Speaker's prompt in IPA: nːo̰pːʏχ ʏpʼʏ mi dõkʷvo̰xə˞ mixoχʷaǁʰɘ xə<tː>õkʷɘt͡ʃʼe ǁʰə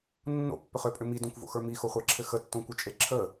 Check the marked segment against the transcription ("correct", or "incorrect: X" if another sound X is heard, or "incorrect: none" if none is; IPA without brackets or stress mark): correct